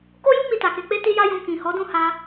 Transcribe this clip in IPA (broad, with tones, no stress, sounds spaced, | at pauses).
k o˦ j u˦ m i˧ t a˨ k e˨˦ k͡p e˦ t i˦ j a˦ j ũ˧ k ĩ˨ h ɔ˨˦ d ũ˦˨ h a˧